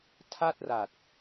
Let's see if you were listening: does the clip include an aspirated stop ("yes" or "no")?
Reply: yes